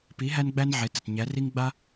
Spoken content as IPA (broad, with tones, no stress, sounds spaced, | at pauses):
p i˨˥ ɦ æ˥ n ɡ͡b æ˥ n ʕ e˨˥ t ə˩˧˩ t ɲ æ˨˥ r i˥ ŋ ɡ͡b a˥